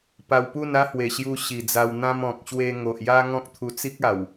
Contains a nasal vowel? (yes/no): yes